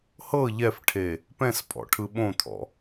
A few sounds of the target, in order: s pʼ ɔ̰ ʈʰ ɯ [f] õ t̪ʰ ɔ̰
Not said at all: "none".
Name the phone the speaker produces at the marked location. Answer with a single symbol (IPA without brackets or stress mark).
ɓ